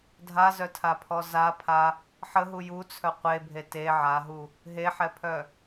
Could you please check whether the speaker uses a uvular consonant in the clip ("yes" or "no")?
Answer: yes